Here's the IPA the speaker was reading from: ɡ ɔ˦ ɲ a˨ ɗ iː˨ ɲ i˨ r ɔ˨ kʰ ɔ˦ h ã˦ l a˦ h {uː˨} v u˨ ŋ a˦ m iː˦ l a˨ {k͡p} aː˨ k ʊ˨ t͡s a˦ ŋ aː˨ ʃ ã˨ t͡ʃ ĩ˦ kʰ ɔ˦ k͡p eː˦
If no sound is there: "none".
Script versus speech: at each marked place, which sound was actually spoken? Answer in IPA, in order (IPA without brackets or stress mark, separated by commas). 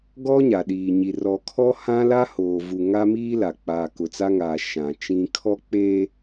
oː˨, k͡p